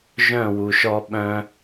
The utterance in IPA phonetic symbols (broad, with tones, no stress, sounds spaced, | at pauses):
ʒ œ̃˦˨ w u˨ ʃ ɔ˦ ɓ œ̃˦